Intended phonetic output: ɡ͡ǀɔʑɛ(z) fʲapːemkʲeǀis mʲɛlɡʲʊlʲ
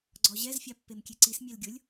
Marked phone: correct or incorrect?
correct